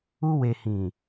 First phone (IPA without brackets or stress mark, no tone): u